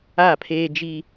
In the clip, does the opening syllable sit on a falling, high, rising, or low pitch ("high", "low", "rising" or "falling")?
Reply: falling